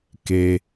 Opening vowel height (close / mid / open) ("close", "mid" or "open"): mid